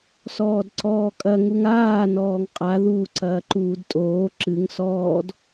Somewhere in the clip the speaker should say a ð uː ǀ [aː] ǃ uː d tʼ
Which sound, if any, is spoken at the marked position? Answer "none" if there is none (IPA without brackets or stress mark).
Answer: ɐː